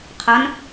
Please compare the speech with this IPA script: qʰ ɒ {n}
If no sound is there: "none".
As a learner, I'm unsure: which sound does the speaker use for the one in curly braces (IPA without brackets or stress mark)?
n